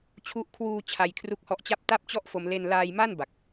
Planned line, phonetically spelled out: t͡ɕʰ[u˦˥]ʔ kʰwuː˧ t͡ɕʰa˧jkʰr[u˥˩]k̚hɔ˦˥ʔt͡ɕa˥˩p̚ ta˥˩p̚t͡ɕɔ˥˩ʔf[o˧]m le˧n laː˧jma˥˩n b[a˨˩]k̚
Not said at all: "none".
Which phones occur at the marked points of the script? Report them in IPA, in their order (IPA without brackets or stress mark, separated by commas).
u˦˥, u˦˥, o˧, a˨˩